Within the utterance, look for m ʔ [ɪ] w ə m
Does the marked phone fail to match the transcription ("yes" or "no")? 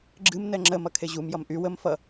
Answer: yes